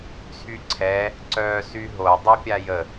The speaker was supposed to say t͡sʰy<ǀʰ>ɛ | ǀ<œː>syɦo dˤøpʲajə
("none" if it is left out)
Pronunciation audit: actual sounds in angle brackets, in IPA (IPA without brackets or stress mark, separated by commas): ǀʰ, œː